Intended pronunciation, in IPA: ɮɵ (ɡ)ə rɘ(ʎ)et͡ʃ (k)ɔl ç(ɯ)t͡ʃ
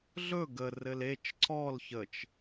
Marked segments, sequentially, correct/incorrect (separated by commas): correct, incorrect, incorrect, incorrect